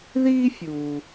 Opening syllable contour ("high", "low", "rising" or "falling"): high